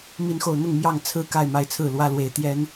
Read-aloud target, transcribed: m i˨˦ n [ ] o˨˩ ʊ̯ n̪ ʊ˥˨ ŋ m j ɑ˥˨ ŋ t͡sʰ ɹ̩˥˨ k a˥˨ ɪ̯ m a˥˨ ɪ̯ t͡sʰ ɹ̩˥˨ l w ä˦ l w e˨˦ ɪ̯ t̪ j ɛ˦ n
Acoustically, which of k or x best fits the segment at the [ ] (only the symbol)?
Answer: x